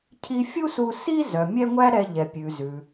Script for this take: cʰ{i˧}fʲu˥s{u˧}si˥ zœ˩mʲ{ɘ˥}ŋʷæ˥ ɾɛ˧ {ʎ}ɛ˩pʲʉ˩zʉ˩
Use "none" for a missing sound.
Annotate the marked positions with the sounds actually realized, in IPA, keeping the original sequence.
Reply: i˧, u˧, ɛ˥, ʎ

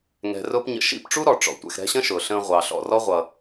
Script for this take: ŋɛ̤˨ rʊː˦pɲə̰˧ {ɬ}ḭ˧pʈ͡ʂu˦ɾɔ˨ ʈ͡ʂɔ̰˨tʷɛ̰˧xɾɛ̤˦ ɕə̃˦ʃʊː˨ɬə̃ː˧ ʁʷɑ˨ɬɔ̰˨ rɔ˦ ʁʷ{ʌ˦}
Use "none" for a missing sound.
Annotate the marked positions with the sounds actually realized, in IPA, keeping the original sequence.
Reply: ʃ, ʌ˧

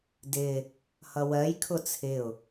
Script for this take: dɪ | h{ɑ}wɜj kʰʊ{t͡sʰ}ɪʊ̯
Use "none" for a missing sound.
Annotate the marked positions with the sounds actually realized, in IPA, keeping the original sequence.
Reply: ʌ, t͡sʰ

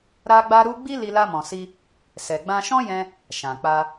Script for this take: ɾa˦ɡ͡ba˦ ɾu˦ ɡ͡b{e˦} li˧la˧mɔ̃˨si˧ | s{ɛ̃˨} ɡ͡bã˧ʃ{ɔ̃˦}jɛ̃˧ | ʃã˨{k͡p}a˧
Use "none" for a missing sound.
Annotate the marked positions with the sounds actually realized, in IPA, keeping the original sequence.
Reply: i˦, ɛ˨, ɔ̃˦, k͡p

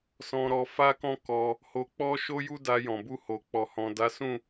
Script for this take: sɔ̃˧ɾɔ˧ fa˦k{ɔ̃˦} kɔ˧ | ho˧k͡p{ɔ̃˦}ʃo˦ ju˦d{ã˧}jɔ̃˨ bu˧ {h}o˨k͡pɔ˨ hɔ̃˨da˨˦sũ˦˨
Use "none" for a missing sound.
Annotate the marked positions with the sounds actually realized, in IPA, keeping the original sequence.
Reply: ɔ̃˦, ɔ˦, a˧, h

